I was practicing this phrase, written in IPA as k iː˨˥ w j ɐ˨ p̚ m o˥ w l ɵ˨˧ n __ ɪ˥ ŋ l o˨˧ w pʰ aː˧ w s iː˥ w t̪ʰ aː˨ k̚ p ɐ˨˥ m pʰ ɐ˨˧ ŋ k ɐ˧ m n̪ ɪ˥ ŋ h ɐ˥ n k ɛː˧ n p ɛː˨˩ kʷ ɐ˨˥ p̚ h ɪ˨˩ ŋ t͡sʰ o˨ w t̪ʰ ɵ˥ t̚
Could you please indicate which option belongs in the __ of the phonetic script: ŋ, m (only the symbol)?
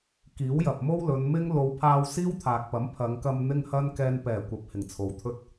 m